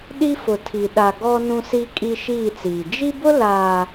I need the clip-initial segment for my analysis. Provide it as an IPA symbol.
ɗ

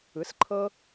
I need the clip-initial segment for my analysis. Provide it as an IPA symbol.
ɯ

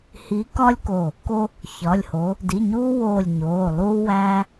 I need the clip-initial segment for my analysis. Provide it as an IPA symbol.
h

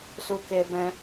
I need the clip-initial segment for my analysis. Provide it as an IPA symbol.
s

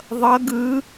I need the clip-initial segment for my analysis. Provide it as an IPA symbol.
ðˤ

